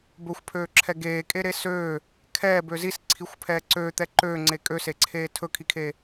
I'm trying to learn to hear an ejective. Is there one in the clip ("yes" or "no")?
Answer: yes